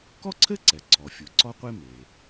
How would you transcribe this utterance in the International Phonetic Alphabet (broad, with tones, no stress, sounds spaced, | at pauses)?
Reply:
k ɔ˥ ǀʰ ɘ˥ ǀ ɛ˩ ǀʰ ɔ˩ fʲ u˩ ǀ ɔ˥ qʷ e˥ m e˩